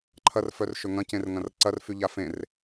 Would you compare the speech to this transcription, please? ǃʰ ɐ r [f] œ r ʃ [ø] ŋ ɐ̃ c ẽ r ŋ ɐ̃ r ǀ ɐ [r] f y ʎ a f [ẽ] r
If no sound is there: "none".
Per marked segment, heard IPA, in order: f, ø, r, ẽ

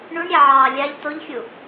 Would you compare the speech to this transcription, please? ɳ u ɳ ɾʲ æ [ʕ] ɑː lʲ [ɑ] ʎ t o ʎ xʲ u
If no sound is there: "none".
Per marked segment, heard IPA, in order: ʕ, ɑ

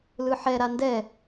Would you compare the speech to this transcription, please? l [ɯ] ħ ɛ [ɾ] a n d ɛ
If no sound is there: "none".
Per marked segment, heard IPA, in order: ɯ, ɾ

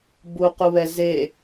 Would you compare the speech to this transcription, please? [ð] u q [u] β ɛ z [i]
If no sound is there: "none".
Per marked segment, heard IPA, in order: b, u, e

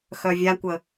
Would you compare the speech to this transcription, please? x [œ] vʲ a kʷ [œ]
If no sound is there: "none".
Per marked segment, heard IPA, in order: œ, ə

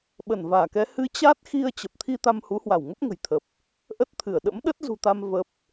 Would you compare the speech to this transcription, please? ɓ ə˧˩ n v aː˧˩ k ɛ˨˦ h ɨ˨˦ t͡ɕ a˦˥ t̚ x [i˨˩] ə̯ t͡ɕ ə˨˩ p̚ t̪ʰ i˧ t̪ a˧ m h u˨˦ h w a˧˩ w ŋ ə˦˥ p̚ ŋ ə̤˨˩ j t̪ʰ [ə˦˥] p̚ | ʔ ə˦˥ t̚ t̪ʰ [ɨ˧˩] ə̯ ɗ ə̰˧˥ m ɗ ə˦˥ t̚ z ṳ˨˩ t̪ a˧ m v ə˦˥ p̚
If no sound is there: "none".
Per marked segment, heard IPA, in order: i˧, ə˨˩, ɨ˧˩

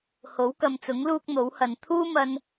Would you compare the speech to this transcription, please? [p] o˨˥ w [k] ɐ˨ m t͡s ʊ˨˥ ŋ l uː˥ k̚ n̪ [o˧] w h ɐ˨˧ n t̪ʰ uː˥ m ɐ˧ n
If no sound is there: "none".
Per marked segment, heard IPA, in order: h, k, o˨˥

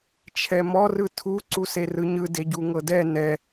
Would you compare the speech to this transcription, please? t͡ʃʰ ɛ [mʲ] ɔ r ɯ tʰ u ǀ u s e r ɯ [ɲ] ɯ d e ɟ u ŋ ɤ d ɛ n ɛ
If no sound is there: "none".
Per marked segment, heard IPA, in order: m, ɲ

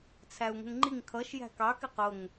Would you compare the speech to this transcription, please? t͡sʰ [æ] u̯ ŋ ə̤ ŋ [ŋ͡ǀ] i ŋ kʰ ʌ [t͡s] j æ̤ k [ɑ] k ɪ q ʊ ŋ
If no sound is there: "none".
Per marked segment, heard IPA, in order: æ, ŋ͡ǃ, ʃ, ɑ

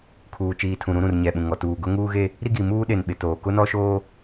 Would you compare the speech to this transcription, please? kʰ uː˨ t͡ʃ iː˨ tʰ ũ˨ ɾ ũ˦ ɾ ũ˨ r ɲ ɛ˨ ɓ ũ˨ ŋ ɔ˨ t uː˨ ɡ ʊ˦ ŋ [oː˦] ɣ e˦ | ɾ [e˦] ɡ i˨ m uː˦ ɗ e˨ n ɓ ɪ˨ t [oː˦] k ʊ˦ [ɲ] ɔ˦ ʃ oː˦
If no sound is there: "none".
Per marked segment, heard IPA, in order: uː˦, i˦, oː˨, n

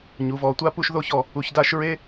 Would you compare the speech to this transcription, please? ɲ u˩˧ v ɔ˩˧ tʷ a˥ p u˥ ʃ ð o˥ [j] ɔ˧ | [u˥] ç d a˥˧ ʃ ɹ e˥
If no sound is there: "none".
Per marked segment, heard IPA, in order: ç, u˧

